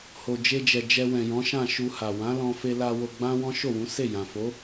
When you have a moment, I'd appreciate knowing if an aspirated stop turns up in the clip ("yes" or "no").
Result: no